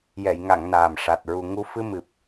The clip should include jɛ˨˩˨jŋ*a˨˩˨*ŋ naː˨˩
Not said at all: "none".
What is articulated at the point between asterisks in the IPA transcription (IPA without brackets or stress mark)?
a˨˩˨